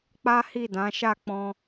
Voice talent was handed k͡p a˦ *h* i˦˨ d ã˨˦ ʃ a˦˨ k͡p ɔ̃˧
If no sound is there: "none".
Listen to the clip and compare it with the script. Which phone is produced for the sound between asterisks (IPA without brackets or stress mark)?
h